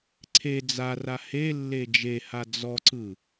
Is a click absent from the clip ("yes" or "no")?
no